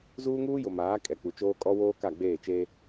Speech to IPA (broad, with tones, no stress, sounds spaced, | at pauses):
z uː˦ ŋ uː˦ j ʊ˨ m aː˨˦ kʼ ɛ˨ k͡p u˨ t͡ʃ oː˦ kʼ ɔ˦ w oː˦ k a˦˨ ɡ͡b eː˦˨ t͡ʃ eː˦